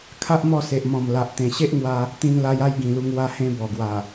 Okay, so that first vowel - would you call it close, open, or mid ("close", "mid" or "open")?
open